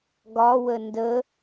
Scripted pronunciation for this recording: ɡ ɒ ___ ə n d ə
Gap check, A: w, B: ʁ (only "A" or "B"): A